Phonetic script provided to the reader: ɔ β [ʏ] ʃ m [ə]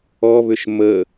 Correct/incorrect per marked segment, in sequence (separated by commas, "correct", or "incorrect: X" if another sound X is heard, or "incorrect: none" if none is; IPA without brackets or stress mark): correct, correct